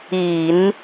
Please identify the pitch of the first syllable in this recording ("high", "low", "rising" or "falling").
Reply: low